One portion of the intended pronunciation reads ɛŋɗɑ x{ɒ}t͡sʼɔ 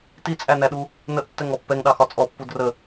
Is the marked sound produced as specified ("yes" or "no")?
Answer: yes